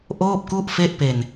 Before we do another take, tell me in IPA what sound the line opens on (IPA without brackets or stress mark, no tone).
ʔ